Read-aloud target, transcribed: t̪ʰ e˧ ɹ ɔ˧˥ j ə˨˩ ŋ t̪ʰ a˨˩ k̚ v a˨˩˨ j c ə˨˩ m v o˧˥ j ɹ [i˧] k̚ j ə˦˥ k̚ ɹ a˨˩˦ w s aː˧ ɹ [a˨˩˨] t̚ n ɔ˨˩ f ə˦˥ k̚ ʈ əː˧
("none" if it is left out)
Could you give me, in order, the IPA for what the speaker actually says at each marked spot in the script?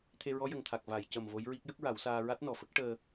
i˦˥, a˦˥

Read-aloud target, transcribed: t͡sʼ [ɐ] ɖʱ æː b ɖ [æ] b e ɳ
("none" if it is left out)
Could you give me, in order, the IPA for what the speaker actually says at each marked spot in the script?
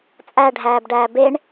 æ, æː

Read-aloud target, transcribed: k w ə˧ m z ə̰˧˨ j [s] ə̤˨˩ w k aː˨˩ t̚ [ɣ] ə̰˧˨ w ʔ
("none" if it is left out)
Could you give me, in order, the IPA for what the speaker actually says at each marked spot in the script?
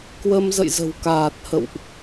z, h

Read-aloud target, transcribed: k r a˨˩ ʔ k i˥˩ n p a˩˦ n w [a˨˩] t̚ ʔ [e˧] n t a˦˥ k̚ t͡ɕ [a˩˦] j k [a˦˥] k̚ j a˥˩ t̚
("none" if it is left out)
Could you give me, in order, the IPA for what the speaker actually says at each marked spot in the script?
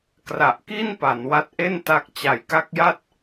a˦˥, e˥˩, a˨˩, a˦˥

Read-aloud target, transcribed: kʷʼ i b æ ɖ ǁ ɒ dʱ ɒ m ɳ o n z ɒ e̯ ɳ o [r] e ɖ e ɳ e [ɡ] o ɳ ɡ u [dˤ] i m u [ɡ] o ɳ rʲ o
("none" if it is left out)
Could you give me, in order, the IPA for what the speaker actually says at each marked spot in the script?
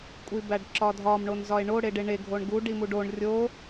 ɽ, ɡʱ, ɖ, ɖ

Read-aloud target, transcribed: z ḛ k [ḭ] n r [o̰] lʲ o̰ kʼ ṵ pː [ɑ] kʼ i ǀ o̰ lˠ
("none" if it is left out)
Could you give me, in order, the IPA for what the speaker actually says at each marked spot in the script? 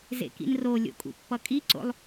ḭ, o, ʌ

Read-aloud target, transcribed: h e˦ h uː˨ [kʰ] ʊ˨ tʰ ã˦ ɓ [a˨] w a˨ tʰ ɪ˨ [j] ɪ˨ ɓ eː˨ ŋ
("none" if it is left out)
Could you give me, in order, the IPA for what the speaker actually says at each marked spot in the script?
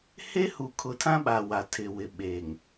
kʰ, a˨, w

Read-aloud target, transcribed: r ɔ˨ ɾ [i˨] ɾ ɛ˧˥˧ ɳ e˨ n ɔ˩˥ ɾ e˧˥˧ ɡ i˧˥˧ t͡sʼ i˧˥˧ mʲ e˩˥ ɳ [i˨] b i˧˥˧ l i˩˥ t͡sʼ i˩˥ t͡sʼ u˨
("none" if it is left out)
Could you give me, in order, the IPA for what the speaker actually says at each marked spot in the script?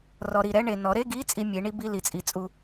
i˨, i˧˥

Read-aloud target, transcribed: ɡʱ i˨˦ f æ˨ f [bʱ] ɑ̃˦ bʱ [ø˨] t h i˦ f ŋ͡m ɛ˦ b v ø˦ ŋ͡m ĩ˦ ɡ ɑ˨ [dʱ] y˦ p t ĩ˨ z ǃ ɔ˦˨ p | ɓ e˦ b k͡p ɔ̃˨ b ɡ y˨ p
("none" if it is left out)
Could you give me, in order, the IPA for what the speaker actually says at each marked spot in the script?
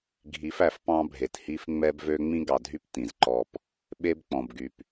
p, e˨, dʱ

